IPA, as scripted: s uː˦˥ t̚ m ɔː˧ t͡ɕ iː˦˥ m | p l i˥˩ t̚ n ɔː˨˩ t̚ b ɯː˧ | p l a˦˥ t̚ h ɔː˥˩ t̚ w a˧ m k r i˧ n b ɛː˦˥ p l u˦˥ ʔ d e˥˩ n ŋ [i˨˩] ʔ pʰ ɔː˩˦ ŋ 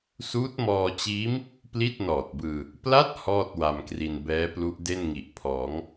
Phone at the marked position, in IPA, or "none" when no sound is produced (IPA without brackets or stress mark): i˨˩